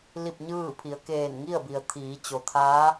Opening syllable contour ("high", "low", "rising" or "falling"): falling